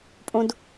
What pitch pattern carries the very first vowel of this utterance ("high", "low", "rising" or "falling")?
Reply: high